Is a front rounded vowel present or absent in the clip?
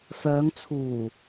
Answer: present